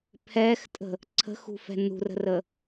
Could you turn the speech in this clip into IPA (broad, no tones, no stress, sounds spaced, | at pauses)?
pʰ ɛ x tʼ ə̤ | ǀʰ ə̤ x ṳ f ɛ̤ n ṳ r ə̤ r ə